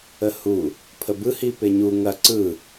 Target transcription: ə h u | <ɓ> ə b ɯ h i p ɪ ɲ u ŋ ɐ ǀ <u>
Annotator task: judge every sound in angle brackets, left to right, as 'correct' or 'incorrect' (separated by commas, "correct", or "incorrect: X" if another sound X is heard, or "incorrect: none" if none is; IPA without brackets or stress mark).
incorrect: pʰ, incorrect: ɯ